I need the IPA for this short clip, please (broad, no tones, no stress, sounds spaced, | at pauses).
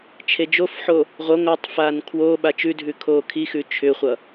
t͡ʃʰ e d͡ʒ o f ħ o | ʁʷ ʌ ŋʷ ɤ tˤ f aː n kʰ w oː ɓ a t͡ʃ ʉ dʱ ʉ kʰ oː kʰ i x ʉ t͡ʃʰ ʏ χʷ ʌ